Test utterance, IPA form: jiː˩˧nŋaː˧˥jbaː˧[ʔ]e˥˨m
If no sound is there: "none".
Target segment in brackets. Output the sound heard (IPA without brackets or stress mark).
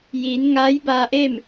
ʔ